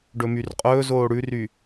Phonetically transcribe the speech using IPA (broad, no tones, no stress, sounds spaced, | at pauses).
ɖ ɵ m y r qʼ ɵː z oː ɽ ʉ r y